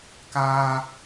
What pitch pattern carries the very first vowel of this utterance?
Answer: high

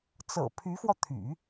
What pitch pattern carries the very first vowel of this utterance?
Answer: low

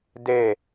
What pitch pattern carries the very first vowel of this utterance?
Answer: falling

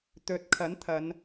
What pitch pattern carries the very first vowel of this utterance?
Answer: rising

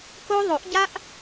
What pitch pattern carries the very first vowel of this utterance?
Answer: high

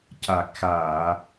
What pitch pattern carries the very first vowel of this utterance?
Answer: low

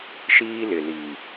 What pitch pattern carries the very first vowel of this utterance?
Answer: high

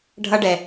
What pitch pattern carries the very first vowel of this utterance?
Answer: high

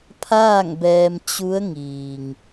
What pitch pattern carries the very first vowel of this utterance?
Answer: falling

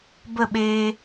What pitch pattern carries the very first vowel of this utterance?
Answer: falling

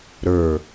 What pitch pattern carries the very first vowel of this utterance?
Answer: low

